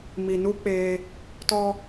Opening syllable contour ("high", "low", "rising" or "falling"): low